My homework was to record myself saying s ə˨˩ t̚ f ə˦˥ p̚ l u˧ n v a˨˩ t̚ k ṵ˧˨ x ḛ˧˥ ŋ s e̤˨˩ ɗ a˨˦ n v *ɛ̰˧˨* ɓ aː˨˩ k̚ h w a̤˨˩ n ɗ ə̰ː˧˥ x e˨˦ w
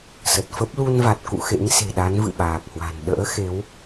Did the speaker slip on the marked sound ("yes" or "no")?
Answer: yes